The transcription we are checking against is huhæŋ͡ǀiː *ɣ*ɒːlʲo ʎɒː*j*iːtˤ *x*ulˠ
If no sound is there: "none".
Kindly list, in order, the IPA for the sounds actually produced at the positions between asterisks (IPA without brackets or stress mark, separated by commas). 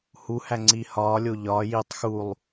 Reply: h, j, x